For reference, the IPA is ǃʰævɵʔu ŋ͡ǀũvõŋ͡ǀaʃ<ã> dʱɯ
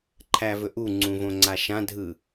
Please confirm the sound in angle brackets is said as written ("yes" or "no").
yes